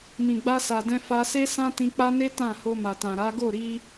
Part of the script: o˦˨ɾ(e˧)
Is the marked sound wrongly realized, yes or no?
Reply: yes